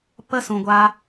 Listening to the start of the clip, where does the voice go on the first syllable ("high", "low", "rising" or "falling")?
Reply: high